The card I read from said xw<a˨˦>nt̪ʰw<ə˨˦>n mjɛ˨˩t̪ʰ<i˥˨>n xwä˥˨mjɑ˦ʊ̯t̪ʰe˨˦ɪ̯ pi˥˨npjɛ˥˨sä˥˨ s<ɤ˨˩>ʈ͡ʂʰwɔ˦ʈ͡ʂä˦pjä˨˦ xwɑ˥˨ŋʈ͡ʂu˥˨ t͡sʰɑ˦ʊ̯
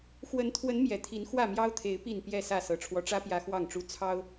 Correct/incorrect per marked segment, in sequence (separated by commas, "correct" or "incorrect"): incorrect, correct, incorrect, correct